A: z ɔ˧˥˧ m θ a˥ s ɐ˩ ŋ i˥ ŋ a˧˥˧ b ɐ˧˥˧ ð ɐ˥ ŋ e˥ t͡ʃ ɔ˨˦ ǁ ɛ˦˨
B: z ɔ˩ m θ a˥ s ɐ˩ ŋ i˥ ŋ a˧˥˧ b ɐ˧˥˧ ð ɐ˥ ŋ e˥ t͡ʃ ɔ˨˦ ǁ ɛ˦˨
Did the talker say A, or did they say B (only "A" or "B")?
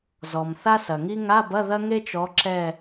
B